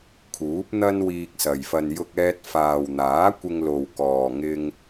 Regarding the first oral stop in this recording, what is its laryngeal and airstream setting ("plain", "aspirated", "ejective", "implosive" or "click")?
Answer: aspirated